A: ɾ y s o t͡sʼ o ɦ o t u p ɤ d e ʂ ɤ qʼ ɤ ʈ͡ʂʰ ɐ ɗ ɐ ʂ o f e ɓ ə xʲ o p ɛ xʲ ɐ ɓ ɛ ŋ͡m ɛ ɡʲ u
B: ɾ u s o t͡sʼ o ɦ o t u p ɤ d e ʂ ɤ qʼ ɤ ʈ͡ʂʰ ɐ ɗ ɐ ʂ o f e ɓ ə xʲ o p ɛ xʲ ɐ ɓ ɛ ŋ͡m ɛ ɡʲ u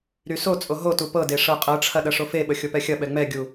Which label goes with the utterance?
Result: A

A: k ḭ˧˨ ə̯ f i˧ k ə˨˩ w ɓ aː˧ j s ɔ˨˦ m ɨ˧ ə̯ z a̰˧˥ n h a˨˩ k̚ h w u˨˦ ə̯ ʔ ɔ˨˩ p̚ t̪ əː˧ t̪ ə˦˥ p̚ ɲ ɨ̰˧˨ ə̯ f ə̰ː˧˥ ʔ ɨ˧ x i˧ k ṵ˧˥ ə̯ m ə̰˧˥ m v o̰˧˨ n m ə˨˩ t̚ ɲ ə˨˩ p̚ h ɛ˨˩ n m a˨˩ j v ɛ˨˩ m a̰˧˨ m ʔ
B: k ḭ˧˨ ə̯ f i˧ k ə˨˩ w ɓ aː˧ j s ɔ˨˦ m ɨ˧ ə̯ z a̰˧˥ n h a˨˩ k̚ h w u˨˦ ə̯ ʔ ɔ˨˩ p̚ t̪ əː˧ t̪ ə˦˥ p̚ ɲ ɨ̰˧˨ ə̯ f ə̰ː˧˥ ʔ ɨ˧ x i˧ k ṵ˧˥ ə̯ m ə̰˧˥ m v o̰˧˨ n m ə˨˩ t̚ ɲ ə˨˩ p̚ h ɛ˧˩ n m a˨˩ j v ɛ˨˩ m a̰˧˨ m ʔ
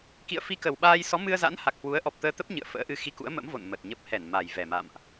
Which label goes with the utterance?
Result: B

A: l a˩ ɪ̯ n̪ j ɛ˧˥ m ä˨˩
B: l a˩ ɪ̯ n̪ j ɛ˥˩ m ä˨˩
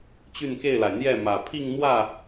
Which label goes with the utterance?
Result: B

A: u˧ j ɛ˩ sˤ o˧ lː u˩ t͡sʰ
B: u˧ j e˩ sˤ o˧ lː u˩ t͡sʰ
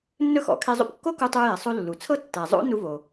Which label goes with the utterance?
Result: A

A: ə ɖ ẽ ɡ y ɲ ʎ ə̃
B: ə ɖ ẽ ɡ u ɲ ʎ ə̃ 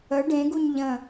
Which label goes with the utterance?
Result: B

